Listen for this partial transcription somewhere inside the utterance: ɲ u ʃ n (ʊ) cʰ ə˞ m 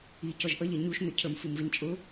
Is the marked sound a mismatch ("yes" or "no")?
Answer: no